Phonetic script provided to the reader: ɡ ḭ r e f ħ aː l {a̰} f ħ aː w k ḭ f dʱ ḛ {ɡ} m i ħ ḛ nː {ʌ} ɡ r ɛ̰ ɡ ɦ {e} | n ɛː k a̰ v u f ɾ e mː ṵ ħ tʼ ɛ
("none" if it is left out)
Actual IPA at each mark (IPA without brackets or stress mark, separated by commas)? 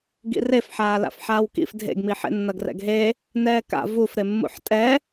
a̰, ɡ, ʌ, e